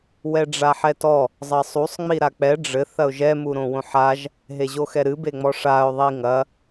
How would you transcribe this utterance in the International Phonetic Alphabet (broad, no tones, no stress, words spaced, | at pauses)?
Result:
wɛɖ͡ʐaħɛtɔ | zˤɐsˤusˤ ŋ͡miɾak͡pɛ ɖ͡ʐɘ θɐʊ̯ʒɛ muɾõwõħaʒ | ɦeʑoxɛɾɨ beŋ͡mɔʂaʊ̯ ðˤiŋɐ